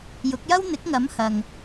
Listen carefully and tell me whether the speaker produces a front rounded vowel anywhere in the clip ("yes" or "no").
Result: no